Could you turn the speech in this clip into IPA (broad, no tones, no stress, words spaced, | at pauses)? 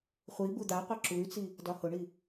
χʷi bud̪aqʷɤ ǁuy̯t͡si | dɒhʊɳi